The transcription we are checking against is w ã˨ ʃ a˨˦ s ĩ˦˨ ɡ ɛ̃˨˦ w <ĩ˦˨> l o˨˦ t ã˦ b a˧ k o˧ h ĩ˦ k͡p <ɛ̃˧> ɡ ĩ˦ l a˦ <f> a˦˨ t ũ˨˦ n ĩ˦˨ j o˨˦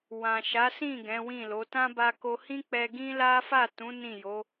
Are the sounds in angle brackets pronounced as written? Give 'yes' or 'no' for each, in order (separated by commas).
yes, no, yes